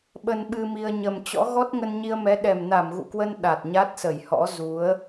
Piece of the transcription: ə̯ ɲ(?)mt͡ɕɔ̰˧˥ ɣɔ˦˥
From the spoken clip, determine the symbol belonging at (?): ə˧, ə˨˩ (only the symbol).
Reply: ə˨˩